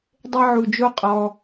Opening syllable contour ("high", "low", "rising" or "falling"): high